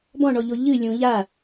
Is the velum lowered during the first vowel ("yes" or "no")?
yes